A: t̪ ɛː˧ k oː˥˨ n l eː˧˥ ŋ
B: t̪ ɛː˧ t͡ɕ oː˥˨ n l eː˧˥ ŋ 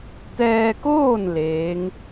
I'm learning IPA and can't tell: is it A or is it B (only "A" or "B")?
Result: A